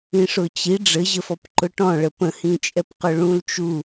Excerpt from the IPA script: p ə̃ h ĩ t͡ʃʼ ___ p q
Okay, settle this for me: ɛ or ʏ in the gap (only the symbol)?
ɛ